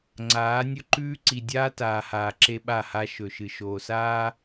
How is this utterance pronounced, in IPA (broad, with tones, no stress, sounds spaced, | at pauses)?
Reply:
ŋ͡ǀ aː˨˦ nʲ ɵ˦ ǃ ʉː˦ ǀ i˨ dʲ aː˦ t aː˨ h aː˨ ǁ e˦ ɓ a˦˨ h a˦ ʃ ɵ˨ ʃ ɨ˨ ʃ oː˨ s aː˦